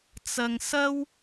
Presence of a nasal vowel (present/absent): absent